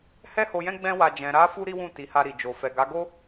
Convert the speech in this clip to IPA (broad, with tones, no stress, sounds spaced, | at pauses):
h ɛ˦ h o˧ j ɛ̃˦ ɡ͡b ɛ̃˦ w a˧ d͡ʒ ɛ̃˨ ɾ a˧ f u˧ ɾ i˦ w ũ˦˨ t i˨˦ h a˧ ɾ i˨ d͡ʒ o˨ f ɛ˨ ɡ a˨˦ ɡ o˦